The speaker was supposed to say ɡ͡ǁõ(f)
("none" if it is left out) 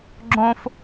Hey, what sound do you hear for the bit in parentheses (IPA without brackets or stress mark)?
f